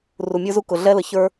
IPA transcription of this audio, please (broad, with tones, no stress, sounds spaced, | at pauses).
r u˨ mʲ ə˞˦ z u˦ k ʊ˨ ɮ ɛ˦ l ə˨ ç ə˞˦